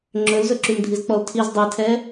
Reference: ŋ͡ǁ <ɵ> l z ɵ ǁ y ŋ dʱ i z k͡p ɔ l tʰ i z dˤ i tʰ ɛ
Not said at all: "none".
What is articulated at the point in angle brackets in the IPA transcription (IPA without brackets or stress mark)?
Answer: ɵ